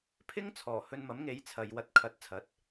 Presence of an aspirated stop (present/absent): present